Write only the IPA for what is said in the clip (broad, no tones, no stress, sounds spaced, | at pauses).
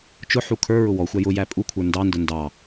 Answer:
t͡ʃ ʊ ħ u kʰ ə˞ ɹ ʊ w ɔ xʷ æ j ʊ j æ pʼ u kʷʰ ə˞ n d ɑ n d ʊ n d ɑ